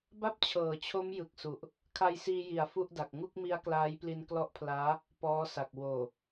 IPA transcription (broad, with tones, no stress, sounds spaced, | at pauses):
b a˥˩ p̚ t͡ɕʰ ɤː˩˦ t͡ɕʰ o˦˥ m j ɯ˨˩ k̚ s u˨˩ ʔ | kʰ a˧ j s iː˧ j i˨˩ a̯ f u˥˩ ʔ d a˨˩ k̚ ŋ u˥˩ k̚ m i˦˥ a̯ k l aː˦˥ j p l i˧ n k l ɔ˦˥ ʔ pʰ l aː˦˥ | p ɔː˦˥ s a˨˩ k̚ w oː˨˩